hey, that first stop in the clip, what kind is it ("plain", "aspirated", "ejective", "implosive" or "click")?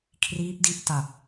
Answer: aspirated